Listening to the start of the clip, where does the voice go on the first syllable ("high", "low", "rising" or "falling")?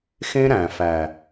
high